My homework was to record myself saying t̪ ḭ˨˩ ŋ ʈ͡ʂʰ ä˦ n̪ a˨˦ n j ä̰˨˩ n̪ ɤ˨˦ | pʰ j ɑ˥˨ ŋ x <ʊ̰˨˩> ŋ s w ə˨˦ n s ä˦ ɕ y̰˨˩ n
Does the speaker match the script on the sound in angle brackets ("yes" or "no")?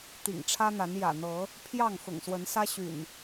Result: yes